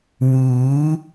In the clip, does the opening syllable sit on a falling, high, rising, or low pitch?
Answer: rising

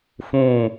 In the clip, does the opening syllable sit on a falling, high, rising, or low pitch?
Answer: falling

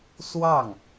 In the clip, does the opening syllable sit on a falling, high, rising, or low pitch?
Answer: falling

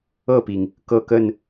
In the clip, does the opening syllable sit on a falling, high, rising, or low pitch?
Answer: falling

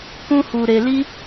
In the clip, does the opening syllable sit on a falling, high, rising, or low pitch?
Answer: high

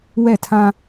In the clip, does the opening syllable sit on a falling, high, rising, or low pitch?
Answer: falling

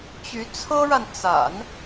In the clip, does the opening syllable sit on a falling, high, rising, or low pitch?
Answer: rising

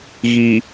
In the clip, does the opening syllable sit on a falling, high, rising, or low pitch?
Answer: low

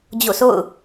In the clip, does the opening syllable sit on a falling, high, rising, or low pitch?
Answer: falling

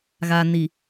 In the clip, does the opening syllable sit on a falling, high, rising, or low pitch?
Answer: low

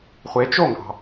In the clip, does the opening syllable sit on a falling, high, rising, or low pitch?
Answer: rising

